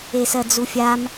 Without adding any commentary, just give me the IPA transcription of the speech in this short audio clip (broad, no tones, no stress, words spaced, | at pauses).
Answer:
esɜd͡zufʲam